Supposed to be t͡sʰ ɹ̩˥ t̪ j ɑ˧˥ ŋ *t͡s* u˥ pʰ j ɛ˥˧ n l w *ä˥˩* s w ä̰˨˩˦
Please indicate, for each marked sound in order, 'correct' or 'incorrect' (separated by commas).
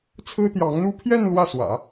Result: incorrect, correct